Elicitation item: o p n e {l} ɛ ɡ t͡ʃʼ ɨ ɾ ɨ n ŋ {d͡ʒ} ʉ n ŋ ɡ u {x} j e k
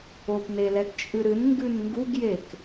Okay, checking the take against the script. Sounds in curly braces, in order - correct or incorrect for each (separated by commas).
correct, incorrect, incorrect